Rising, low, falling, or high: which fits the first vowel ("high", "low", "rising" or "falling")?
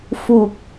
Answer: low